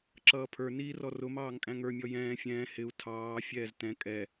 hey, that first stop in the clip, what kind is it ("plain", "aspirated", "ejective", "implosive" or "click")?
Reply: click